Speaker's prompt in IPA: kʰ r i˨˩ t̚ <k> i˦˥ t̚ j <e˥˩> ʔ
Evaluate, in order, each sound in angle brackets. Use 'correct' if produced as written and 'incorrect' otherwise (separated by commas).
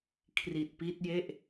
incorrect, correct